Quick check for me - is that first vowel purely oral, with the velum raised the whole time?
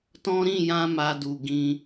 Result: no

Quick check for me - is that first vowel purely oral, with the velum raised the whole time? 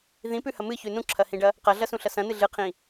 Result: no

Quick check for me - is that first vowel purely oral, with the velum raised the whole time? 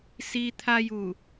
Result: yes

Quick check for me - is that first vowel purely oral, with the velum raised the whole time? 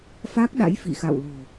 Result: yes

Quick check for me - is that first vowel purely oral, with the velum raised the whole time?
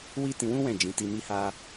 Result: yes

